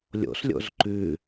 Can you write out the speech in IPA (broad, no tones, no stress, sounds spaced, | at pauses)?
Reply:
lʲ o̰ s lʲ o̰ z ǃ ʉ